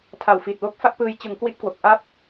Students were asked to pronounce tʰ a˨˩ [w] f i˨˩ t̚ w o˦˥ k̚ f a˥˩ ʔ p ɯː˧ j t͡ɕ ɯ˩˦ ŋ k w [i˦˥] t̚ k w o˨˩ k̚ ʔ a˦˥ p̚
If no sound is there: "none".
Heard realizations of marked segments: w, i˦˥

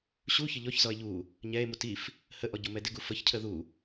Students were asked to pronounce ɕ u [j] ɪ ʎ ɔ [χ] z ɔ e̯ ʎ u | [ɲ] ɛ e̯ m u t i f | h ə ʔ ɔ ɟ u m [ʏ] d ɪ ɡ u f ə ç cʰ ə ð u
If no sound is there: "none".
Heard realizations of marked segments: ç, ç, ɲ, ɛ

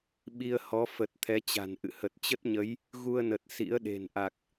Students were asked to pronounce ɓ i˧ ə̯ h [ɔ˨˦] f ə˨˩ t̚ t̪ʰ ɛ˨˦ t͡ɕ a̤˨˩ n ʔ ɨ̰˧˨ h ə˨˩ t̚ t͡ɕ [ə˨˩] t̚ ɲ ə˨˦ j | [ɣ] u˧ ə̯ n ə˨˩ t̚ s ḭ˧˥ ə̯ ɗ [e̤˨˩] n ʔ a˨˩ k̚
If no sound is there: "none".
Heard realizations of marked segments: ɔ˨˦, ə˦˥, ɣ, e̤˨˩

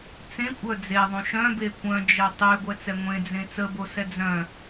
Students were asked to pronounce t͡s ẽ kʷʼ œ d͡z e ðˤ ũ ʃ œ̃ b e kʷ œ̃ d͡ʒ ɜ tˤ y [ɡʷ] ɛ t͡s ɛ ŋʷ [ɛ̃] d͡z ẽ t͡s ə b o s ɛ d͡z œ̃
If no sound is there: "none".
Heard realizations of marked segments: ɡʷ, ẽ

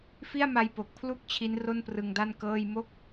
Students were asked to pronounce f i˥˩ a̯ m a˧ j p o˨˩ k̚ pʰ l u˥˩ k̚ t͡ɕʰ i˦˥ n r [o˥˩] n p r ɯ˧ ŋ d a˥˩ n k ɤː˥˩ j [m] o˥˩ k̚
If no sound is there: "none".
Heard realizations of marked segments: o˥˩, m

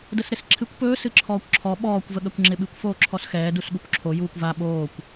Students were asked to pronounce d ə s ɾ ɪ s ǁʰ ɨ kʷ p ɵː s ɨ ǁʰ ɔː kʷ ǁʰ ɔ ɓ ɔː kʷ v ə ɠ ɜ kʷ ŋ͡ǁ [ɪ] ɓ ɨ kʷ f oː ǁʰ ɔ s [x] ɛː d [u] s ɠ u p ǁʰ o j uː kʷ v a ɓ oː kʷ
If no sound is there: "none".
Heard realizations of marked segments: ɪ, x, u

